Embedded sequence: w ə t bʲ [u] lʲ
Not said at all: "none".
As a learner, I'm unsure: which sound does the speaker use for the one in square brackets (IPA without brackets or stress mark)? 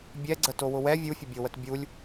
u